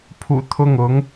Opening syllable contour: low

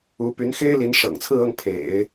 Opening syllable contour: rising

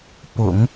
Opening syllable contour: low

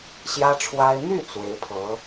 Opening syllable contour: high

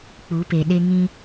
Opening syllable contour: rising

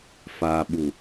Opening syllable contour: low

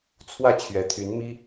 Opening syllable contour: falling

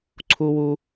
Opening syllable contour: high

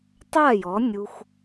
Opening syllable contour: falling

